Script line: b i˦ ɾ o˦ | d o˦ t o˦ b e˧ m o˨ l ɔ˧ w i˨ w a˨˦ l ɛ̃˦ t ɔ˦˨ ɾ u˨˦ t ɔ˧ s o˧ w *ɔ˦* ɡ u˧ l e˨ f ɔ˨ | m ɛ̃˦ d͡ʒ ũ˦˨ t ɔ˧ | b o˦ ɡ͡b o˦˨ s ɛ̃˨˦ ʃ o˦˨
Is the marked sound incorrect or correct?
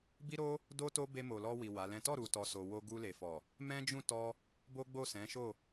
incorrect